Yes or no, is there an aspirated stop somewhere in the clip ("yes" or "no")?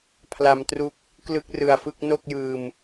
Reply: yes